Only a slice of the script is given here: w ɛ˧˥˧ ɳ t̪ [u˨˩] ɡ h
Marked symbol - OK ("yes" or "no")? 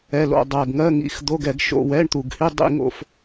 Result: yes